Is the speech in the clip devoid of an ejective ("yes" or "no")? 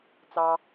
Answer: yes